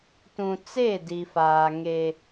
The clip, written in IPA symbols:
tũ˨t͡se˦˨ di˨faː˨ ŋe˦

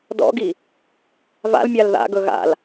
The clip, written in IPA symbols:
dɔ̰ɡi | va̰lmʲal ða̰ɡɵ ɣa̰l

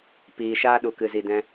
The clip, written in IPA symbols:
piː˨ʃaː˦ɗu˨ kɨ˨zi˨dɛ̃˧

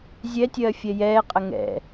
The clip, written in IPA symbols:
zʲɛtʲɜː fʲɛjɛːqʼɐ ŋɛ̰

